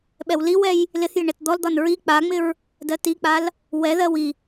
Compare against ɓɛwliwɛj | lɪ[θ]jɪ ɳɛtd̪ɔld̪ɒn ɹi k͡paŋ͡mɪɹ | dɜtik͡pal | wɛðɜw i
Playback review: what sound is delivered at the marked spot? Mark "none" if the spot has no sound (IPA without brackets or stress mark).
θ